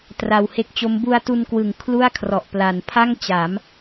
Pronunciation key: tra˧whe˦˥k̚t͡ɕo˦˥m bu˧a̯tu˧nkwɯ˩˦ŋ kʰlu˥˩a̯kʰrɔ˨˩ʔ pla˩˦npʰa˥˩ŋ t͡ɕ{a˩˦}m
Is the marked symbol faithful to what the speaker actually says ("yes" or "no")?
yes